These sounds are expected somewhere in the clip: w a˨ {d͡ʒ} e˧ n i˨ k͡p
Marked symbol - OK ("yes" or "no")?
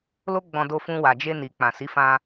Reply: yes